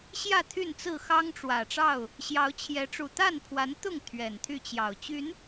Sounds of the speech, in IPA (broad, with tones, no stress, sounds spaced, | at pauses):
ɕ j ä˥˨ t̪ʰ y˥˨ n t͡s ɹ̩˥˨ x ɑ˦ ŋ ʈ͡ʂ w ä˨˩ ʈ͡ʂ ɑ˥˨ ʊ̯ | ɕ j ɑ˨˦ ʊ̯ t͡ɕʰ j ɛ˨˦ ʈ͡ʂ u˨˩ t̪ a˥˨ n pʰ w a˨˦ n t̪ ʊ˥˨ ŋ t̪ʰ ɥ ɛ˨˩ n t̪ʰ y˥˨ t͡ɕ j ɑ˨˩ ʊ̯ t͡ɕ y˨˦ n